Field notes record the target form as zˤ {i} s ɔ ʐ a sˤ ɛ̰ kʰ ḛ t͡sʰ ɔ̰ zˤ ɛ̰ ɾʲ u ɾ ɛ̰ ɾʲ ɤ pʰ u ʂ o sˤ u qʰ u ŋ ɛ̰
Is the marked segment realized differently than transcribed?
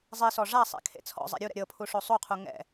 no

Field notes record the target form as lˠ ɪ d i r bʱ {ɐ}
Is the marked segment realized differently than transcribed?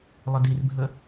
yes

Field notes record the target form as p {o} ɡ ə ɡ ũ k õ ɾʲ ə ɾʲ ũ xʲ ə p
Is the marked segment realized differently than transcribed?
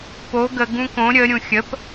no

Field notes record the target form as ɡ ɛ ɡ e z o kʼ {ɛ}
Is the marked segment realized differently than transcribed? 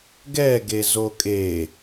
yes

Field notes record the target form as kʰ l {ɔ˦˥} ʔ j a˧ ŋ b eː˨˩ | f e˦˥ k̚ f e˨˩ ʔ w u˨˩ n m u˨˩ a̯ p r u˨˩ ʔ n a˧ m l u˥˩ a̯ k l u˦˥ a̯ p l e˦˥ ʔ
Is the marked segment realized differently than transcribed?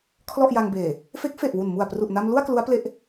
yes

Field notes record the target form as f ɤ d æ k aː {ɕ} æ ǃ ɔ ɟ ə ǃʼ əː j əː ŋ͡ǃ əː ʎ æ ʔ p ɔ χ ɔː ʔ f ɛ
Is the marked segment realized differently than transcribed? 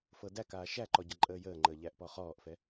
yes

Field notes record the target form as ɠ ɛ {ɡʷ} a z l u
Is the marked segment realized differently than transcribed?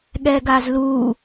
yes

